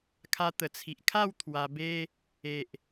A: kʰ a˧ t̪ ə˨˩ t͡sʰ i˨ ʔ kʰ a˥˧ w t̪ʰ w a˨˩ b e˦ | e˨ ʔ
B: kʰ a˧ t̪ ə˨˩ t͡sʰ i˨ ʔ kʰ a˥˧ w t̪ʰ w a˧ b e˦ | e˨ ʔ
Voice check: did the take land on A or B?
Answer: B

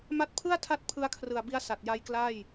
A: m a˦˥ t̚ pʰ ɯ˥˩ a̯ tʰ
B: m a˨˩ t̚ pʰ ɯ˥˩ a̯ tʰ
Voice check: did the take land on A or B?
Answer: A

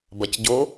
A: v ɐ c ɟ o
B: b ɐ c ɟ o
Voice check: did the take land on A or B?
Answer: B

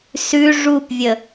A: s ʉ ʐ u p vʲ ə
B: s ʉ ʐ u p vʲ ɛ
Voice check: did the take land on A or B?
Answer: A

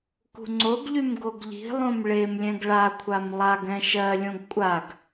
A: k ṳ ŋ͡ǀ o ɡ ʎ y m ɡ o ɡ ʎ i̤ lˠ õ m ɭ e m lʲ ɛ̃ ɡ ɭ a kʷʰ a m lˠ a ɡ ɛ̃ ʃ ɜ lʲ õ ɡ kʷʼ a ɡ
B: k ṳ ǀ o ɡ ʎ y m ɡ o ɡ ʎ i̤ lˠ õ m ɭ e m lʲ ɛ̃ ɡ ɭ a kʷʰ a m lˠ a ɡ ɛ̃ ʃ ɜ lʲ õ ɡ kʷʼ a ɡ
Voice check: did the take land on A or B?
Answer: A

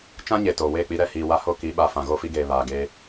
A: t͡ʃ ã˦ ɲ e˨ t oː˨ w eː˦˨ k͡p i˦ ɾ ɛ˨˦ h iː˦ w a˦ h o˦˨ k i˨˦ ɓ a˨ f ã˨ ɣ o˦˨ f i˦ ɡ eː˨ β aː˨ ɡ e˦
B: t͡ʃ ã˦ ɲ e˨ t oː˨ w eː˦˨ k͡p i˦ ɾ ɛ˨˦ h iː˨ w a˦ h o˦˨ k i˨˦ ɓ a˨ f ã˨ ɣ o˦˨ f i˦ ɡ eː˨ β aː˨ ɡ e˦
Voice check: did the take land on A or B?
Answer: B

